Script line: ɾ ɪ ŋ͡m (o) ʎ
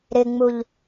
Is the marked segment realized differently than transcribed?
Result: yes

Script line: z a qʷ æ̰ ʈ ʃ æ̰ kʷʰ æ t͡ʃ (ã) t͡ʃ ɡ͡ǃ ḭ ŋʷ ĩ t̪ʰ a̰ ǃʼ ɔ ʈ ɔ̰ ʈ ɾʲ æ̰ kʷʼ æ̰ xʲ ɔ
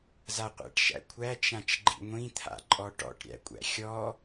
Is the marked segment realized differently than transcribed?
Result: no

